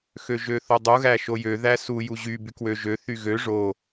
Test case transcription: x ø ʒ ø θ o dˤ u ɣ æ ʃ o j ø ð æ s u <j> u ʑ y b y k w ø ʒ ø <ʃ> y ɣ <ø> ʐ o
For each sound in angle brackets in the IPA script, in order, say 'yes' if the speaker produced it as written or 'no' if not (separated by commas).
yes, no, yes